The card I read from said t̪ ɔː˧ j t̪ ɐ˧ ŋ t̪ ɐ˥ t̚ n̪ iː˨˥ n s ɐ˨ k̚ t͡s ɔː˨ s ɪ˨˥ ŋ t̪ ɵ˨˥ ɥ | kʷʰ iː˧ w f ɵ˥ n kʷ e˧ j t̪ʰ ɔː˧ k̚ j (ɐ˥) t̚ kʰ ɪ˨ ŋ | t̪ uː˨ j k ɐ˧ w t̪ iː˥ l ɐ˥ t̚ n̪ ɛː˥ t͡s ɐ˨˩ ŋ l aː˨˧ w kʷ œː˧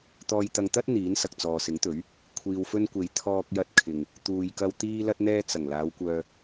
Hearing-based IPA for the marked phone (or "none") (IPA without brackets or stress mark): ɐ˧